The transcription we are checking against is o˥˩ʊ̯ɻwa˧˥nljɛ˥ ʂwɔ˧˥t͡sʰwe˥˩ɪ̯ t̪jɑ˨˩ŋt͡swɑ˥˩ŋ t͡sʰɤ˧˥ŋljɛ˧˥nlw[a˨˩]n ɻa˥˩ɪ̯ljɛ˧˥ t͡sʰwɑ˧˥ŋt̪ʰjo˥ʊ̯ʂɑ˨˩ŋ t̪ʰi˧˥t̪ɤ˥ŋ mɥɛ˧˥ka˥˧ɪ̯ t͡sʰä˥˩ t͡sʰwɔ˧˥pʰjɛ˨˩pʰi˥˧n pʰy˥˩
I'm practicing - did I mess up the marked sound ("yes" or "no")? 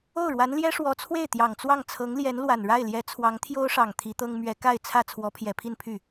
no